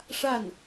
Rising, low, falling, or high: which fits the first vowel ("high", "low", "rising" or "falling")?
falling